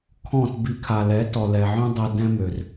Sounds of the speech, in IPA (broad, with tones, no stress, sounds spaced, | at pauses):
kʰ ɔ̃˦˨ t b i˧ kʰ a˨ l ɛ˨˦ t ɔ˨ l ɛ˨ ʕ œ̃˦ dˤ ɛ˧ d ɛ̃˧ m ø˨ r